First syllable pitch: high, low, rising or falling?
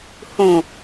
low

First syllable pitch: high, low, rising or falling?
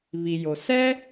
low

